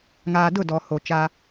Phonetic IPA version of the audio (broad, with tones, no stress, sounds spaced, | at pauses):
ŋ aː˨ d ʊ˦˨ d ɔ˨ h o˨ t͡ʃ a˦